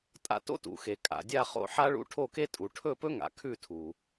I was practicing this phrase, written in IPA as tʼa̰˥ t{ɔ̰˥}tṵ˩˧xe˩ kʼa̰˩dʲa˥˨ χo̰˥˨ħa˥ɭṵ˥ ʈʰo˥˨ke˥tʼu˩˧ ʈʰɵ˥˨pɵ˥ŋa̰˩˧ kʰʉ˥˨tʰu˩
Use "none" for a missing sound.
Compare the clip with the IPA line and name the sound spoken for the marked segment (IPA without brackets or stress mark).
o̰˥